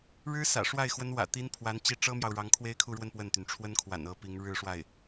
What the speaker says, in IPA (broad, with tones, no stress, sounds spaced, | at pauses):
ɻ ɻ̩˥ s ä̰˨˩ ʂ w a˥˩ ɪ̯ x w ə˧˥ n w ä̰˨˩ t̪ i˧˥ n pʰ w a˧˥ n t͡ɕ i˥˩ ʈ͡ʂ ɤ˥ m j ɑ˨ ʊ̯ ɻ ɑ˧˥ ŋ kʰ w e˥ ɪ̯ kʰ u˥˧ ɻ w ə˥˧ n p w ə˥˩ n t̪ y˩ n ʈ͡ʂʰ w ə˥ n kʰ w a̰˨˩ n ɤ˧˥ p i˧˥ ŋ ɻ ɻ̩˥˧ ʂ w a˥˩ ɪ̯